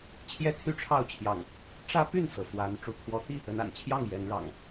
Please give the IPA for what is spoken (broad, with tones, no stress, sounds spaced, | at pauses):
t͡ɕʰ j ɛ˦ t̪ʰ y˦ ʈ͡ʂʰ ɑ˥˨ ʊ̯ t͡ɕʰ j ɑ̰˨˩ ŋ | ʈ͡ʂ ä˦ p y˥˨ n s ɤ˩ f w a˨˦ n ʈ͡ʂ u˨˦ kʰ w ɔ˨˦ t̪ i˥˨ | ə˨˦ n a̰˨˩ n t͡ɕʰ j ɑ˥˨ ŋ j ɛ˨˦ n ɻ ɑ̰˨˩ ŋ